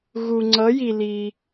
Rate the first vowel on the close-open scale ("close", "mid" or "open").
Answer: close